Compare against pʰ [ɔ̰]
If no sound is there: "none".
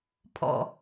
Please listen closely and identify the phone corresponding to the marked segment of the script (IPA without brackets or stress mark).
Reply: ɔ̰